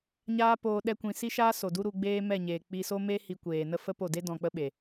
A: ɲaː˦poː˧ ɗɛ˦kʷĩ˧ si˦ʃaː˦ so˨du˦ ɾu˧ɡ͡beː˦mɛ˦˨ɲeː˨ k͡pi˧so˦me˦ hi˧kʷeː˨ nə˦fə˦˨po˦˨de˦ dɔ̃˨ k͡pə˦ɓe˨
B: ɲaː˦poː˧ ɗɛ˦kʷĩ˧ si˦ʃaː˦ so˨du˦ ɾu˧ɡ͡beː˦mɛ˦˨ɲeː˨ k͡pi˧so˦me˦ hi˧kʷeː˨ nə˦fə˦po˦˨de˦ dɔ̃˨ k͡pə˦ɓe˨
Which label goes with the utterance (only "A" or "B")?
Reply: B